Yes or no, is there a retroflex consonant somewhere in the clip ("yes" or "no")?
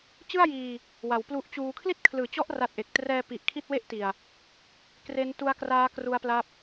no